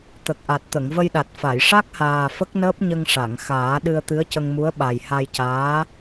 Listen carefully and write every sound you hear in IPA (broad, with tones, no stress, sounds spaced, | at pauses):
t̪ ə˨˩ k̚ ʔ a˨˩ t̚ t̪ ə˨˩˨ ŋ v ə˧ j ɗ a˨˩ t̚ f a˨˩˨ j ʂ a˦˥ k̚ h aː˨˩ f ə˦˥ k̚ n əː˦˥ p̚ ɲ ə˧ ŋ ʂ a˨˩˨ ŋ x aː˨˩˦ ɗ ɨ˧ ə̯ t̪ ɨ˧˥ ə̯ c ə˧ ŋ m u˧˥ ə̯ ɓ a˨˩ j h a˧ j c aː˧˥